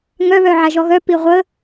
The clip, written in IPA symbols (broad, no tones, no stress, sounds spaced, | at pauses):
ŋ œ β œ ʕ a ʒ ɔ ɣ œ p i ʁʷ ə